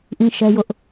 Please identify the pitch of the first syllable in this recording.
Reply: high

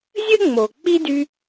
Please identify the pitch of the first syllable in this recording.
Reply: high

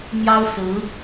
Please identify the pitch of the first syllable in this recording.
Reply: high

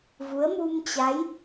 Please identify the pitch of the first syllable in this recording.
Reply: rising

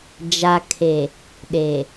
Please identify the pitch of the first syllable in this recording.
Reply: low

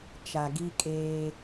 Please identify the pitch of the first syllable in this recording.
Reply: low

